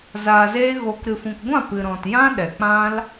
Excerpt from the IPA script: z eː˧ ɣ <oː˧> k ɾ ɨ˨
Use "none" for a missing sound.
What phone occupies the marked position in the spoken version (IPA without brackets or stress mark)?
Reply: oː˨